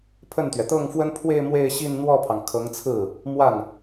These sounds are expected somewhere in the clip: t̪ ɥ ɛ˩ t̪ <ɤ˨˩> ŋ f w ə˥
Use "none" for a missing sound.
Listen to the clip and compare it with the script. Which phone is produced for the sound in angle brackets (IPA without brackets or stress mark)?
ɤ˥˩